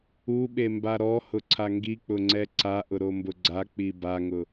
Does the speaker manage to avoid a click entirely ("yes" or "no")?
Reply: no